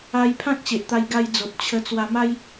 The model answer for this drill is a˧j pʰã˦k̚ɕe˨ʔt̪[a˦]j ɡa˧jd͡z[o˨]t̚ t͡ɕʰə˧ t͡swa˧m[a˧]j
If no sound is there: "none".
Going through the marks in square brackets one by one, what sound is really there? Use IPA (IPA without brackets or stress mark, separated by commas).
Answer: a˧, o˨, a˦